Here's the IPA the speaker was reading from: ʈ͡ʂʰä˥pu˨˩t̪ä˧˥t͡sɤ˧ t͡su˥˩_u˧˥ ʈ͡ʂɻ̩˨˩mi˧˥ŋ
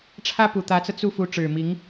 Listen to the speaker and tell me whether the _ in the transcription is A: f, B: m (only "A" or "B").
A